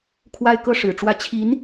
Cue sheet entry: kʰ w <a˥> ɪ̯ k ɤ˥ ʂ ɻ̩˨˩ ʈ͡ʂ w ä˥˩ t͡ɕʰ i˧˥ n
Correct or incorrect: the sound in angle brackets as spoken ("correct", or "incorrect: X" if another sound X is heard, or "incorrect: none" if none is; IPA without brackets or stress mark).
correct